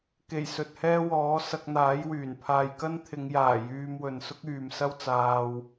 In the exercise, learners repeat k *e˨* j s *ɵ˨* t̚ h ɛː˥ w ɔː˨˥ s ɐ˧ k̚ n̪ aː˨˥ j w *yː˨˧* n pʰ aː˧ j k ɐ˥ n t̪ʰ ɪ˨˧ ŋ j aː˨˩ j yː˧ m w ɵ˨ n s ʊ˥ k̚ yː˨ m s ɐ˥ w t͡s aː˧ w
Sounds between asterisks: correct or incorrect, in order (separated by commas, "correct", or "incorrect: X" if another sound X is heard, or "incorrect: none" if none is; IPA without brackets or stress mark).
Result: incorrect: e˨˩, correct, incorrect: yː˨˩